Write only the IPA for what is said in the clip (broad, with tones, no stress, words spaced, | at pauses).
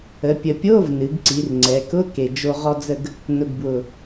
ə˩˧pʲə˨˩ pʲo˧˥˧vnɨ˩˧ɡǀi˩˧r ŋ͡ǀɛ˩˧kʊ˧˥˧ke˨˩d͡ʒo˧ ʁɔ˧d͡zə˧ɡ | nʊ˨˩ɡbwʊ˨˩